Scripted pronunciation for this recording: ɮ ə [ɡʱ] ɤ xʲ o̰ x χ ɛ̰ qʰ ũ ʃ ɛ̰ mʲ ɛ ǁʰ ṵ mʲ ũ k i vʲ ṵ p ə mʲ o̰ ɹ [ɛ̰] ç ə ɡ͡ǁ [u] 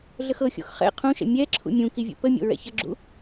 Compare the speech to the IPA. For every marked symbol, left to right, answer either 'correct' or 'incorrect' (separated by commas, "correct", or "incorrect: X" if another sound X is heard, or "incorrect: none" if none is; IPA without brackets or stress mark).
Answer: incorrect: x, correct, incorrect: ṵ